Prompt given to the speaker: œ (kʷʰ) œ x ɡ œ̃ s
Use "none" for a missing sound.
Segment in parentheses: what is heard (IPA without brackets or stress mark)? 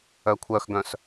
kʷʰ